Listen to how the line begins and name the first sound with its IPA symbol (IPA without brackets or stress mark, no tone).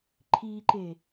ǃʰ